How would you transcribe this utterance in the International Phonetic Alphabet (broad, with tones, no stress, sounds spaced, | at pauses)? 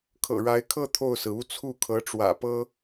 kʰ ɤ̰˨˩ ɻ a˧˥ ɪ̯ kʰ ɤ˥˧ t̪ʰ o˥˩ ʊ̯ s ɹ̩˩ u˥ t͡sʰ u˥˩ kʰ ɤ˧˥ ʈ͡ʂ w ä̰˨˩ p ɤ˥